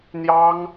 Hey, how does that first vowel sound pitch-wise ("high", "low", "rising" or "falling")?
high